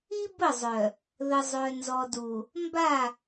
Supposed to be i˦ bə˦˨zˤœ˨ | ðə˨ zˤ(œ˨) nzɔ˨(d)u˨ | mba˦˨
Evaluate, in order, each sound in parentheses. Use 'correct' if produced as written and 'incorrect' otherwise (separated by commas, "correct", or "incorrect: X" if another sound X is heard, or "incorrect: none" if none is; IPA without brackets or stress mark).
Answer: correct, correct